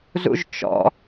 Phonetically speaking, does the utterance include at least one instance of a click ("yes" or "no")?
no